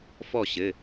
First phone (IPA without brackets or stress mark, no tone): f